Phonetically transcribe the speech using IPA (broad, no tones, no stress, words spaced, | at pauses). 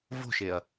vo̤ʃeɐ̯